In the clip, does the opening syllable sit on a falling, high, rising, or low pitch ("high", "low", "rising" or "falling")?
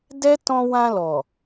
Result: high